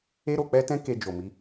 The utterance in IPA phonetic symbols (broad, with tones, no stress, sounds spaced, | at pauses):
e˦ ɾ o˧ k͡p ɛ˦ t ɛ̃˦ k e˧ d͡ʒ o˨ m i˨˦